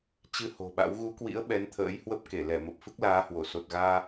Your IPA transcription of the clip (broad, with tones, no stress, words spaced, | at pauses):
t͡ɕɨ˧ ho̤˨˩ɓa̰˧˥w ɣu˨˦kwḭ˧˥ə̯ ɓɛ˨˦nt̪ʰə̰ː˧˥jhwə˦˥p̚ ke˧˩lɛ˧˩ mə˨˩p̚fɨ˦˥k̚laː˨˦hwo˧˩ so˨˩t̚ɣaː˧